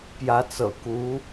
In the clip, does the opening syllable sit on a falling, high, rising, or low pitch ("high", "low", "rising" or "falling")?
rising